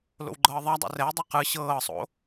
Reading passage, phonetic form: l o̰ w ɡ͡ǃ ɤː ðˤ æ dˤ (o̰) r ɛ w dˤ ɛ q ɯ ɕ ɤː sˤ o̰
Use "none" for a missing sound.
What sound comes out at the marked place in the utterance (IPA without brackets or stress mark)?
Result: o̰